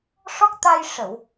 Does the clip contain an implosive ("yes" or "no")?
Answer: no